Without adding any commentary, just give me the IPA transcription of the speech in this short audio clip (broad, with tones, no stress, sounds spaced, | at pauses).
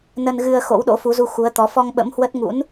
n ə˧ n ɣ ɨ˧ ə̯ x o̰˧˥ w ɗ o̰˧˥ f u˨˦ z u˧ x u˨˦ ə̯ t̪ ɔ˨˦ f ɔ˧ ŋ ɓ ə̰˧˥ m h w ə˦˥ t̚ ŋ ṵ˧˥ n